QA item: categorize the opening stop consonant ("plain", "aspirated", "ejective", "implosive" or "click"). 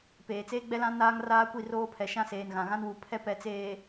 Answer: plain